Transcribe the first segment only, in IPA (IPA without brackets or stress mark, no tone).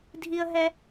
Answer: dʱ